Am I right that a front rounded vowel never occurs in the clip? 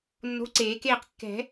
yes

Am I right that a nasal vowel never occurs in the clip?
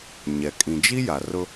no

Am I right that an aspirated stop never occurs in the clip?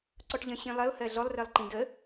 yes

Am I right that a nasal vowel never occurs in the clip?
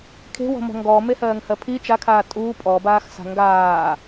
yes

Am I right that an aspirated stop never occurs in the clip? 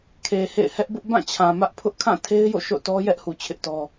no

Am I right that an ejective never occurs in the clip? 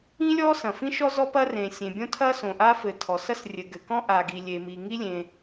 yes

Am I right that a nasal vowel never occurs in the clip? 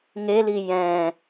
no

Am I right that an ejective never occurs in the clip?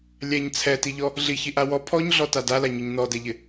yes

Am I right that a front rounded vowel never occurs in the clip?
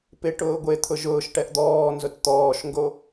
yes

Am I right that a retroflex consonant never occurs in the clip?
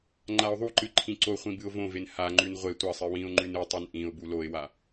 yes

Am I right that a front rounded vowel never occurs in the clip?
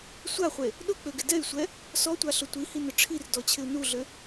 no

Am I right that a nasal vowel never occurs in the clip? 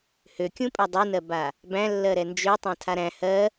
no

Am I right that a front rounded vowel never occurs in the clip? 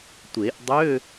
no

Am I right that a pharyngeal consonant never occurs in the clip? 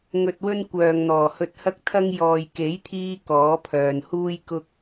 yes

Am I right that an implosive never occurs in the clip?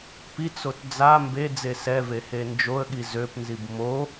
no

